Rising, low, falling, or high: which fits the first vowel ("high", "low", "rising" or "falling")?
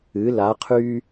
rising